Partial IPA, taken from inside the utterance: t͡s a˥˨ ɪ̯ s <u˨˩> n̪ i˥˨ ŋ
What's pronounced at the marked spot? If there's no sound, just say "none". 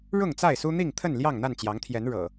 u˦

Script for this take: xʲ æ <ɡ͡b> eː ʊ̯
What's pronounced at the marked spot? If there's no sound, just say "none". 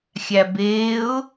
b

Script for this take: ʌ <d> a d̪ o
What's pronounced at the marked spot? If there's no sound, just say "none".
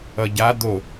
ɟ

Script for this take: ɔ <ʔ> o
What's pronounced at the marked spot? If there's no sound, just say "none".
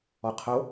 qʰ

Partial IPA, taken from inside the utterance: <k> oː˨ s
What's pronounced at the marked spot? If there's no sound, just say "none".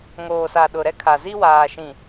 ŋ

